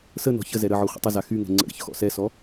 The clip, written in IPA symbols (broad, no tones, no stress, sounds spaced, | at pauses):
s ə n ɔ̤ ç ə z ɛ ɾ ə ʕ ɔ χʷ ə̰ tˤ ə z a x y ŋ ɛ̤ ŋ͡ǀ ə̰ ɾ ə̰ ç x ɔ̰ s ɛ s ɔ